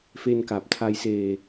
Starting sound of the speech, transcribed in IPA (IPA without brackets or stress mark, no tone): f